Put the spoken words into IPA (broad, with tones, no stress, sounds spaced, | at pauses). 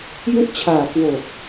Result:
j u˥˩ ʔ t͡ɕʰ aː˨˩ k w o˨˩ k̚